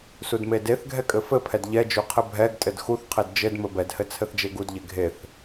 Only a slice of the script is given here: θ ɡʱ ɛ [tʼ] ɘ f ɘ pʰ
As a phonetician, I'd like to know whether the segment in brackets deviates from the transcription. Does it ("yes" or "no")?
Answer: yes